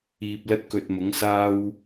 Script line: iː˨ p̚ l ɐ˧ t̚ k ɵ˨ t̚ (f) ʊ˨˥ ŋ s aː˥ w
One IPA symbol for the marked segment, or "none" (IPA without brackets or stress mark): m